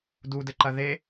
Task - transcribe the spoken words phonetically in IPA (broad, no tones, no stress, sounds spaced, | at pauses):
d u d ɘ ǃ ɐ ð e